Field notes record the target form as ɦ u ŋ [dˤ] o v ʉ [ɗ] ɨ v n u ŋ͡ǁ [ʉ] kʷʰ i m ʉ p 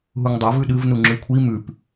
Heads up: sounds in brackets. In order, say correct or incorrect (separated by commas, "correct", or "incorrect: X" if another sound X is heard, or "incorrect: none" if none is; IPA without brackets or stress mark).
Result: correct, correct, correct